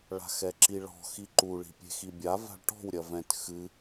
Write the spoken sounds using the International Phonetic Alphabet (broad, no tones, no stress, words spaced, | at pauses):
ɭa̤xɛǁiɭɔ̤ xiǃu ɭi̤pʲe̤xibʲa va̤ɭʈɔ̤w ɾʲɐvɛ̃t xɨ